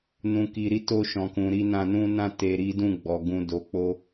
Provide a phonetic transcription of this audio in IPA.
n ũ˨ k i˨ ɾ i˧ t o˧ ʃ ɔ̃˨ k ũ˨ ɾ i˧ n ã˧ n ũ˦ n ã˦ t e˧ ɾ i˦ d ũ˦˨ ɡ͡b ɔ˨ ɡ ũ˨ d o˨˦ k͡p o˦

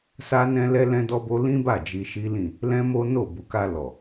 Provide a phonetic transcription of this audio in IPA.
s a˦ n ɛ̃˦ l ɛ˦ l ɛ̃˦ d ɔ˦ b o˦ l ĩ˦ b a˦˨ d͡ʒ i˧ ʃ i˦ l ĩ˦˨ | l ɛ̃˦ m o˦ n o˦˨ b u˨ k a˧ l ɔ˨

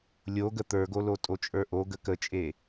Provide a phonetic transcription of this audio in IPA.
lʲ o ɡ ə t̪ ə˞ ɡ o l o tʼ o t͡ʃʼ ə˞ ʔ o ɡ ə k ə t͡ʃʼ e

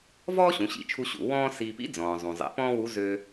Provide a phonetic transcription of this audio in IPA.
v ɔː˥ ɕ ũ˩˧ ɕ ḭ˩˧ t͡ʃʰ u˧ ɕ ṵ˩ w ɔ̃ː˥ s i˧ p ḭ˧˥ d͡z ɔ̃ː˩ zˤ ũ˩ zˤ ḛ˩˧ p ɔ̃ː˥ w u˧˥ z øː˧

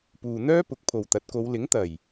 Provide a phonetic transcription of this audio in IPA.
p uː˨ n̪ œː˥ p ʊ˨˥ k̚ pʰ o˨ w t̪ ɐ˨˥ t̚ k o˨˧ w l ɪ˨˥ ŋ t̪ ɐ˨˩ j

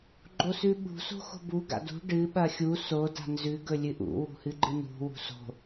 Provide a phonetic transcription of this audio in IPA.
ɡ͡ǃ o s ʉ ɓ ṳ s o̤ x o̤ b u ɡ a̰ d ṳ ɖ ɨ ɓ ɐ xʲ u s o d a̤ n z ʉ ɡ ɵ lʲ ɨ ʔ ṵ w ṳ h ɨ ɡ͡ǃ ɨ n ṳ w ṳ s o̤

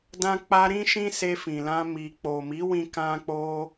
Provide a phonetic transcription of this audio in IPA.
d ã˧ k͡p a˧ ɾ ĩ˦ ʃ ĩ˦ s e˧ f ĩ˨ l ã˧ m i˨ k͡p o˨ m i˨˦ w ĩ˧ k ã˦ k͡p o˦

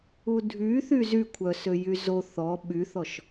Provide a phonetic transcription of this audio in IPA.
u dʱ y θ y z y kʷʰ œ s ø j y z o θ ɔ ɓ y θ ɔ ʃ

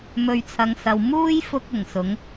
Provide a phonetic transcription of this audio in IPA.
m ɵ˨ ɥ t͡sʰ ɐ˨ ŋ s ɐ˨ w m uː˥ j f ʊ˧ k̚ ʊ˨˩ ŋ s ʊ˨˥ ŋ

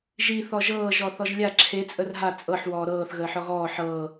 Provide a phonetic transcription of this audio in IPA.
ʒ i θ ɔ ʒ ɤː ʒ ɔ θ ɔ ʒ lʲ a ǁʰ e t͡sʼ ə r ɦ a t͡sʼ ɤ ħ w ɔː ɾ ɤː θ ɣ əː ħ ɔ ɣ ɔː ħ ɤː

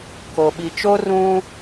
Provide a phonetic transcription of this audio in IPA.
k o˨ ɓ i˨ t͡ʃ o˦ r ũ˦

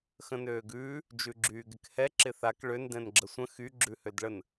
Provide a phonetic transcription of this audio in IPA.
x ə̃ n øː ɡ ʉː | d͡ʒ ʉ ɡ͡ǁ yː ɡ ɪ k h ɛ ǁ ɪ θ a k ɭ ø n d ɛ̃ n ɡ͡ǁ ə sʷ ə̃ x y ɡ͡ǁ ʉ h ø d ɭ ə n

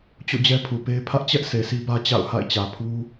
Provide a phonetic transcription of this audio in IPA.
t͡ɕ o̰˦˨ d͡ʑ ɛ˦ pʰ u˨ p e˦ ɪ̯ pʰ ä˦ ʔ t͡ɕ ɛ˦ ʔ sʰ e˨ s i˦ b ä˦ t͡ɕ a̰˦˨ ʊ̯ h a̰˦˨ ɪ̯ t͡ɕ ä˨ pʰ u˦

